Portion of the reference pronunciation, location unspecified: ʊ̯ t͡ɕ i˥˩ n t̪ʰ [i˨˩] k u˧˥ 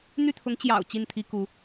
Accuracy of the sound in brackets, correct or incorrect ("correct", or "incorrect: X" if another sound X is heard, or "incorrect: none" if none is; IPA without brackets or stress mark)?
incorrect: i˥